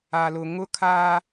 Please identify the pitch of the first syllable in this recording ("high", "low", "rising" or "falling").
low